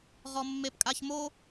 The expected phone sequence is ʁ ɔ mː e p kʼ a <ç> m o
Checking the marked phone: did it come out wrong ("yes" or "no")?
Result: no